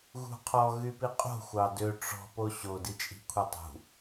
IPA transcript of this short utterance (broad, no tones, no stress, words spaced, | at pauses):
ɣṳqʰɔ ɣypiqʼo̤ xʷɑdø ʈ͡ʂɔ̤ poɕo dit͡ʃʼi̤kʷʰetˤṳ